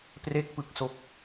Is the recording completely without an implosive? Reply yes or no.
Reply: yes